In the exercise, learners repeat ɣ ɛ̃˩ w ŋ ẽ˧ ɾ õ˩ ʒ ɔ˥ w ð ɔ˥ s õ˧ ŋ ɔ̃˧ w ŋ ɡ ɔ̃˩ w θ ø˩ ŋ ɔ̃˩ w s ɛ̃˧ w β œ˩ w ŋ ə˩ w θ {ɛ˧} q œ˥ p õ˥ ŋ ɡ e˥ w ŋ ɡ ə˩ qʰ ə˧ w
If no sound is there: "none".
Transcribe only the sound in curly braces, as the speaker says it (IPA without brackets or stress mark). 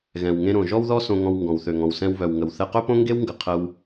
ɛ˧